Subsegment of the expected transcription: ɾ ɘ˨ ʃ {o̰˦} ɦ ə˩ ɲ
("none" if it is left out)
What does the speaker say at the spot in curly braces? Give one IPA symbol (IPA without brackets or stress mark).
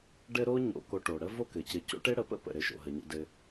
o̰˩